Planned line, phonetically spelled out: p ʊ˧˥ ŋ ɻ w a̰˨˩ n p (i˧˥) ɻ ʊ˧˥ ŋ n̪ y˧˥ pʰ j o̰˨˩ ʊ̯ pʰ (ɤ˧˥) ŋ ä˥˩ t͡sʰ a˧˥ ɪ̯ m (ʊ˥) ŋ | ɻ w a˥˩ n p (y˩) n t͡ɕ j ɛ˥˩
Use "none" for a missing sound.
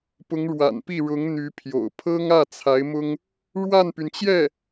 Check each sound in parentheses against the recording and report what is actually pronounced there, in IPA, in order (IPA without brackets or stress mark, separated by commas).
i˥˩, ɤ˥, ʊ˥, y˩